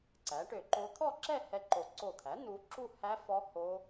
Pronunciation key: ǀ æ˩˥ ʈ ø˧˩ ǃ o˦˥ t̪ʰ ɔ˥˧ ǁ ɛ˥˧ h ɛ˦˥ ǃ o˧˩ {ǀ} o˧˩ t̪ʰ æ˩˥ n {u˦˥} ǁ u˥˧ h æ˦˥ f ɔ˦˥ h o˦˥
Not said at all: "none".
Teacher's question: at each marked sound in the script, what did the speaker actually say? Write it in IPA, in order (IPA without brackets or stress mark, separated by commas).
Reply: ǀ, u˦˥